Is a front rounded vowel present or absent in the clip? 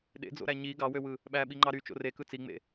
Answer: present